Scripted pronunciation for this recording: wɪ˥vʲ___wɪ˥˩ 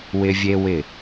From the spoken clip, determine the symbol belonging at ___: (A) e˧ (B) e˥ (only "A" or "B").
B